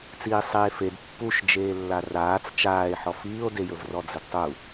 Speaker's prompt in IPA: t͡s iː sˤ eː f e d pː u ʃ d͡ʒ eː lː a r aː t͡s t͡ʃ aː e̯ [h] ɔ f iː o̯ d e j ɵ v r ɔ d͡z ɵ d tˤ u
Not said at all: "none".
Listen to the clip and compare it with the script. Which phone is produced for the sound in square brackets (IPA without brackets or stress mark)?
ħ